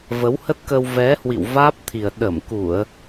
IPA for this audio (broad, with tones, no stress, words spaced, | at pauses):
və˨˦whə˦˥t̚kə˧w vɛ˨˦hwḭ˧˨w vaː˦˥p̚t̪ʰi˨˩ə̯ ɗə˧˩mku˧˩˨ə̯